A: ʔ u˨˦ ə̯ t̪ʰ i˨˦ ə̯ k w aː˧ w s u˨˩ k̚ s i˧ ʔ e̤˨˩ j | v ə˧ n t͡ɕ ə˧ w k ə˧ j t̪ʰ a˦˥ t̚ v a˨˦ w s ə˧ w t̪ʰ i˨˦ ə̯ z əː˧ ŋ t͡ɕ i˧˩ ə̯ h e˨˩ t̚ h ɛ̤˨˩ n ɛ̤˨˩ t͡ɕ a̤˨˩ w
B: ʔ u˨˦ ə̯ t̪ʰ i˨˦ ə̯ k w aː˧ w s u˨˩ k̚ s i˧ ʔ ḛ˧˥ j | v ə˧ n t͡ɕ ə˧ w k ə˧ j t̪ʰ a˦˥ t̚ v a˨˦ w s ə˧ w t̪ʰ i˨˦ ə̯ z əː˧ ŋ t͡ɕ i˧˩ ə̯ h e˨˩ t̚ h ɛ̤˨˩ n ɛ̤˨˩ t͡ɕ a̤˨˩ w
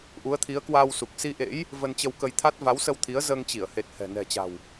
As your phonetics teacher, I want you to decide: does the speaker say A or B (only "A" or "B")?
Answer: B